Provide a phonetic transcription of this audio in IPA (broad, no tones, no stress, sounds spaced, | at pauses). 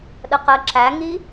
ɗ ə q ɜ ǁ æ ŋ i